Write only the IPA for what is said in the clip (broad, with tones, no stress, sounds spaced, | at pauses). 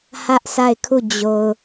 h ä˦ ʔ sʰ a˦˨ ɪ̯ kʰ u˦˨ d͡ʑ o˨ ʊ̯